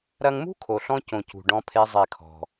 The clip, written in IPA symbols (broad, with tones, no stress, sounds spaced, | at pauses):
ɾ ɐ˧ ŋ m ṳ˦ kʰ o˨ ɬ ɔ̃˦ c õ˨ c ṳ˨ ɖ ɔ̃˦ pʰ e˦ zˤ e˦˨ kʰ ɔ̤˧